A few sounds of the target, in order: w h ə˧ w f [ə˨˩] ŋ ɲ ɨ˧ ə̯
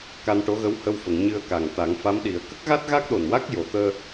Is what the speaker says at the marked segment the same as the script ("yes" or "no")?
no